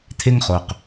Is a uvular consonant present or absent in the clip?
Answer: present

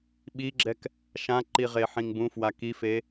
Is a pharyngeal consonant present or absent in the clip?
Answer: present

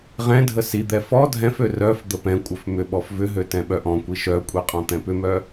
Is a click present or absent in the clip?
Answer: absent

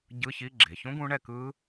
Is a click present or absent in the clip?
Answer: present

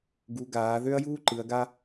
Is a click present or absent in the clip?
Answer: present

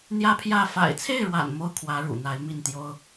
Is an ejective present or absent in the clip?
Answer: absent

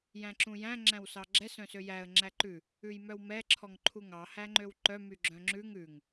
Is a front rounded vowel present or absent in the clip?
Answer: present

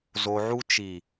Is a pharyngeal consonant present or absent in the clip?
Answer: present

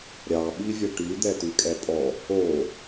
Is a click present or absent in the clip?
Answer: absent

